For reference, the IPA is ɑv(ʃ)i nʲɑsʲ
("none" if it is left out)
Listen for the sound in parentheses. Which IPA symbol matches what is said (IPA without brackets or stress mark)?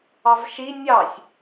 ʃ